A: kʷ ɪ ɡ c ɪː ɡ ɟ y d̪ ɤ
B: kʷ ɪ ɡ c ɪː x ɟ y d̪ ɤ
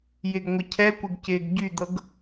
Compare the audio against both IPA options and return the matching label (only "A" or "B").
A